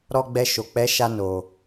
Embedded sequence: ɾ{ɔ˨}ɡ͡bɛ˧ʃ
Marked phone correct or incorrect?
incorrect